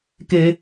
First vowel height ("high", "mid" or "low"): mid